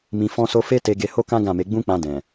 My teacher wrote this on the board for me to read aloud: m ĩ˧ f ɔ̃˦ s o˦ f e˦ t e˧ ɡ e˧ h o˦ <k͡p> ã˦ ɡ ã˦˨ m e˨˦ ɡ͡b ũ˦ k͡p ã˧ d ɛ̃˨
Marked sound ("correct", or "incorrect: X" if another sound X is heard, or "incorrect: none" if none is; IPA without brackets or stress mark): incorrect: k